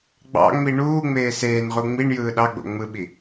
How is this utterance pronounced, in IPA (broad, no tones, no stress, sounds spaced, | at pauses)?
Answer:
ɡ͡b ɑ̰ ŋ͡m i ɳ uː ŋ͡m eː s eː n ʁ u ŋ͡m i ɳ j ɯː ɗ ɑ ɡ͡b o̰ ŋ͡m ɯ ɓ i